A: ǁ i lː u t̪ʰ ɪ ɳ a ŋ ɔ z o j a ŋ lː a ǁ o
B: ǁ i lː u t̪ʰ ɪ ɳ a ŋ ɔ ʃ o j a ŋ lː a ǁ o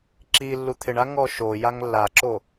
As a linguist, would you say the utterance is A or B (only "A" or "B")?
B